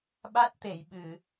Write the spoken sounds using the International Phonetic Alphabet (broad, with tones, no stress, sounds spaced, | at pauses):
ɓ a˦˥ t̚ t̪ e˨˩˨ j ɓ ɨ˨˩˨